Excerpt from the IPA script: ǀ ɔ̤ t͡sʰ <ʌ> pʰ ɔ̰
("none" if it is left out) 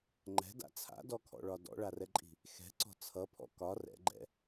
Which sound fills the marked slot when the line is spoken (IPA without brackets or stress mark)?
ʌ